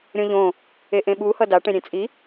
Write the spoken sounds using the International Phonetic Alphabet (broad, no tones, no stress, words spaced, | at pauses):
ɾʲõʎõ | eʔẽɓu hʌda ʈẽɾʲẽt͡sʼi